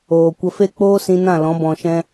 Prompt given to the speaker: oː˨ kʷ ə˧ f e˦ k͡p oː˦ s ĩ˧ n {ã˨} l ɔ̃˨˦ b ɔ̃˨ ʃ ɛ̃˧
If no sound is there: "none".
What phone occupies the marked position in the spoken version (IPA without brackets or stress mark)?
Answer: ã˦˨